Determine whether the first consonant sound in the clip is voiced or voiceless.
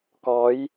voiceless